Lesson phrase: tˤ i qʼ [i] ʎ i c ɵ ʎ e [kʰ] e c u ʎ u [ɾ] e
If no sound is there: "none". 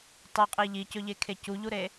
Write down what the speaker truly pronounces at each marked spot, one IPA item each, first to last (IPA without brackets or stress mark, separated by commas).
i, kʰ, ɾ